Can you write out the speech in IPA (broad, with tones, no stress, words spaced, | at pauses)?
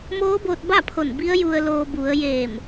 moː˧˥boː˧t̚ba˥˨pʰo˧˩n bi˧˥ə̯ju˧ə̯ loː˧ bu˩˧ə̯ jeː˧˩m